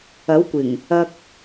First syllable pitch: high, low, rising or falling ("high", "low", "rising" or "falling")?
rising